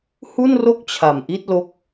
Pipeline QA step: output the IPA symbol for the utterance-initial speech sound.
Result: h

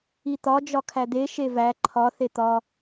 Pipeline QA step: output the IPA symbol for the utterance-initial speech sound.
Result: i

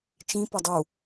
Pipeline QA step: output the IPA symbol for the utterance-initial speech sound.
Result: t͡ʃ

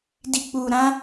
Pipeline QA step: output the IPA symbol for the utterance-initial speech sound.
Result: d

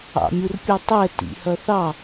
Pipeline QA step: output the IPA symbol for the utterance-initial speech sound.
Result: ɑ̰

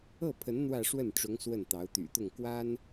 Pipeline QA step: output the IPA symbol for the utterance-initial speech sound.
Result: ɤ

